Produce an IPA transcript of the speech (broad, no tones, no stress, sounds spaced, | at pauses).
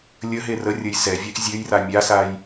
lʲ ə ɦ e r ə rʲ ə j s ɛ vʲ ɛ ʔ zʲ ø j r a mʲ a s a j